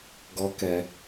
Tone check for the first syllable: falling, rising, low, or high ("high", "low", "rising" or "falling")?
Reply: high